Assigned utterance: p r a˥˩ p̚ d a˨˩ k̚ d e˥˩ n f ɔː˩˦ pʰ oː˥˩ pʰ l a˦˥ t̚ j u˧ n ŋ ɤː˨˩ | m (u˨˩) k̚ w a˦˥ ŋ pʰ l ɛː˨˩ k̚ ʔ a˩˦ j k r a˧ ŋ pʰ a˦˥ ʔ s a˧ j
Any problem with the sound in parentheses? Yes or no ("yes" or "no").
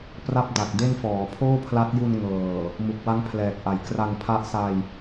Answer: no